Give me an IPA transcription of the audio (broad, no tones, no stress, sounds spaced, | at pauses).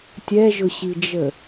tʲ ɛ ʒ ʊ ɕ i d͡ʒ ə